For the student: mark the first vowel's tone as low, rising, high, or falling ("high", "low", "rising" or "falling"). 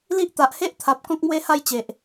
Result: high